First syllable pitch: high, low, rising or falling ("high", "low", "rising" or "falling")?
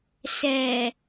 low